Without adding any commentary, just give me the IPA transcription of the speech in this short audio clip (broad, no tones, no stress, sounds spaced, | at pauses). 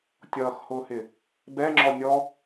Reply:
tʲ ʌː x h ʊː h ɪ | b ɛ ŋ͡ǁ ɔ nʲ ɔ